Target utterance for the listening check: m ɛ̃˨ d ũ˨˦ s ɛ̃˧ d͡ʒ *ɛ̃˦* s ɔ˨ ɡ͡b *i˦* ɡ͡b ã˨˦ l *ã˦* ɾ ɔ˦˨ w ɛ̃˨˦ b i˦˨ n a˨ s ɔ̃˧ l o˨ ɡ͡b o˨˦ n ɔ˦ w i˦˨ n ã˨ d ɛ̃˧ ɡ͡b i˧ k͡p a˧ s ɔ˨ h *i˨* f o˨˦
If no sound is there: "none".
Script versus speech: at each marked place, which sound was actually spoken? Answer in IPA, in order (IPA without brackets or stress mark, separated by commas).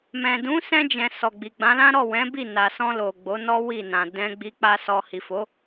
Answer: ɛ̃˨, i˨, ã˦, i˨